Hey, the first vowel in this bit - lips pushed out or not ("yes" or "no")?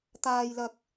no